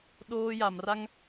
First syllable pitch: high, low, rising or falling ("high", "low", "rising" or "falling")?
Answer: high